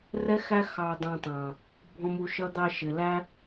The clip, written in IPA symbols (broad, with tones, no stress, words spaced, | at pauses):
rɛ˦xæ˦ xɑ˧dˤɑ̃˧tˤɑ̃˨ | bʱɔ̃˦mu˧ʃʌ˦ d̪ɑ˧ʃɪ˨læ˦